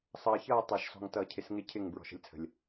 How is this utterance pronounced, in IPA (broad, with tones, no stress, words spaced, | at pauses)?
sˤʌː˨çʌː˦˨ tˤæ˨ʃsɔ̤˨ŋ tʌː˨cʰɪ˨sŋɪ˦ cʰɪ˦˨ŋ bɹɔ̤˨ʃə̤˦lʲt͡sʰə̤˨lʲ